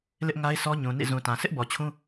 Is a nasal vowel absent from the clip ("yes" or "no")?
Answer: no